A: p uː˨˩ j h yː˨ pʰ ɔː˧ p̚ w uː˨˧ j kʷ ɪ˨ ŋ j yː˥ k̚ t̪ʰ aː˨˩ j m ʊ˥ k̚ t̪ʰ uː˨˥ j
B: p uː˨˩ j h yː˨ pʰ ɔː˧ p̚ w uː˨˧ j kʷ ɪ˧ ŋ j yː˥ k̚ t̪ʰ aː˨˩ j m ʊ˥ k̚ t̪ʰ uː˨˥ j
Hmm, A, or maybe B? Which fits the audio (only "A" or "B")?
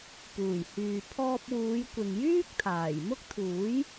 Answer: A